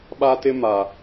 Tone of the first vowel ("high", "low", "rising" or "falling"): high